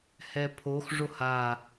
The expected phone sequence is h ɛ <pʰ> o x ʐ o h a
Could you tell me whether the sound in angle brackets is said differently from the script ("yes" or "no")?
no